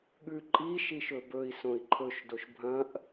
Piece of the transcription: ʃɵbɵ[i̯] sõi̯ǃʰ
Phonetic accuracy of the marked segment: correct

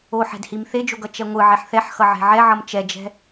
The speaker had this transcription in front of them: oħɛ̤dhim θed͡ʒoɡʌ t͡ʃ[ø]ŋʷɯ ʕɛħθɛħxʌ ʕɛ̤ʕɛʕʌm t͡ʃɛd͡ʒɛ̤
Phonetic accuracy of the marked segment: incorrect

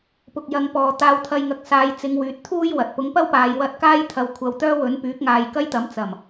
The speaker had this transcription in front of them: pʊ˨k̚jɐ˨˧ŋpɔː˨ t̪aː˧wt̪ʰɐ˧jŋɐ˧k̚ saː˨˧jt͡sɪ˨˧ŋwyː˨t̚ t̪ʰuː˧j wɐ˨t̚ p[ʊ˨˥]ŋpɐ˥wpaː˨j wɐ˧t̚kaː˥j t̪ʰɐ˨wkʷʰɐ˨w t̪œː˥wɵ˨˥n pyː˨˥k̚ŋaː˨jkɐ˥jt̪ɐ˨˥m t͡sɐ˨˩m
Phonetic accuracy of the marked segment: correct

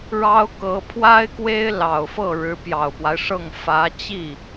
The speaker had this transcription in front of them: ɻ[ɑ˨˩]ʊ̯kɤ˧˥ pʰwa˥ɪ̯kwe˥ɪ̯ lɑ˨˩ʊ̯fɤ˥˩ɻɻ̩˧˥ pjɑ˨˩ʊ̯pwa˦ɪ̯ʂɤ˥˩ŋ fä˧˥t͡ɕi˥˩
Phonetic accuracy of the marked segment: incorrect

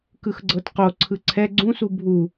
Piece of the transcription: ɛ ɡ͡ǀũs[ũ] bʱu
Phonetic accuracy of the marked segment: incorrect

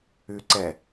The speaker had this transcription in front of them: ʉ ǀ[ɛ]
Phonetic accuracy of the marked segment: correct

